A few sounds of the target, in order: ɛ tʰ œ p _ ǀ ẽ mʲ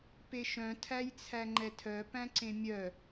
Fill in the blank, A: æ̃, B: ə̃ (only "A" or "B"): A